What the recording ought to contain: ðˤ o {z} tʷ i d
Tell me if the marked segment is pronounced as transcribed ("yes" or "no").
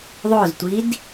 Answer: yes